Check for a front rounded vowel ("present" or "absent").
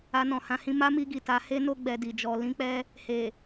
absent